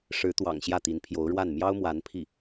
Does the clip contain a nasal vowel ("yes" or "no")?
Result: no